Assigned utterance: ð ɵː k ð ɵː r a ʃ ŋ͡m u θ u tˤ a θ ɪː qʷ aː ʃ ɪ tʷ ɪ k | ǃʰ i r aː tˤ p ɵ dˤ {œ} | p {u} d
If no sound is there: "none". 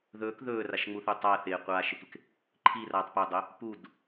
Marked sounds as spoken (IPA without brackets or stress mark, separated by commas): œ, u